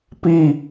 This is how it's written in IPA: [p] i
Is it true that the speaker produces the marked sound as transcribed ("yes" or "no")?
yes